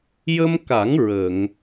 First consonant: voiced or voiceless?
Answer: voiced